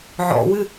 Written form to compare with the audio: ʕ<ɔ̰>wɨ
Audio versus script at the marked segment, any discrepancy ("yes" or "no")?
no